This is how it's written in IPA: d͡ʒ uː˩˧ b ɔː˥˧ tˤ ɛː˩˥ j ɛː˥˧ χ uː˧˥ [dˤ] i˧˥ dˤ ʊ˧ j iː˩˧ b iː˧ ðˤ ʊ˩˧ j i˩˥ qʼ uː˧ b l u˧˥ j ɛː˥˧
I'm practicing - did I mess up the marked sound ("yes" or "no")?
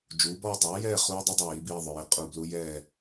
no